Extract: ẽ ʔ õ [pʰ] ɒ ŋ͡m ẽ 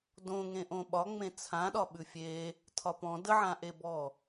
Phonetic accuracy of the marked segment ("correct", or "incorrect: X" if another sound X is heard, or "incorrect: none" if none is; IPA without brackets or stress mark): incorrect: ɓ